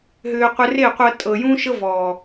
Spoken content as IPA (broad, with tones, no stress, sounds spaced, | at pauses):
ɦ ʏː˧ qʷ ɨ˧ r e˦˨ qʷ ɤ˧ tʼ ɤ˨ j ũ˦ ʃ ɤ˦ v ɔː˨